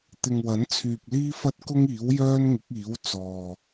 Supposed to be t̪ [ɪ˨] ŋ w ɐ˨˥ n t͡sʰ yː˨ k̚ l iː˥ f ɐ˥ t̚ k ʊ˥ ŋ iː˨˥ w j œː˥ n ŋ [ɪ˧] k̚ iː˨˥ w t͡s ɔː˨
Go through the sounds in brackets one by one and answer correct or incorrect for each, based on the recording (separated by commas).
correct, incorrect